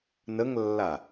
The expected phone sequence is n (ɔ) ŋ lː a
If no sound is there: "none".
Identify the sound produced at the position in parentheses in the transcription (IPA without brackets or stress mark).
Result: ə